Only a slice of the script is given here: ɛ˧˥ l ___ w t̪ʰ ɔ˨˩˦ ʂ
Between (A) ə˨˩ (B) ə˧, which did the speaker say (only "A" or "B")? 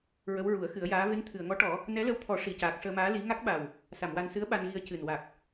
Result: B